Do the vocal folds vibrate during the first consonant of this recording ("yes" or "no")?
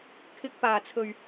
no